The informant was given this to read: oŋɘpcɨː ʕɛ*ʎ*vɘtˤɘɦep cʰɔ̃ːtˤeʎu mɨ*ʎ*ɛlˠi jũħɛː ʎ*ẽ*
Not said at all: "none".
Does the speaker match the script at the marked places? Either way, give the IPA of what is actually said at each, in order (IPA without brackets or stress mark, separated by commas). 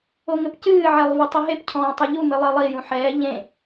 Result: lˠ, lˠ, ẽ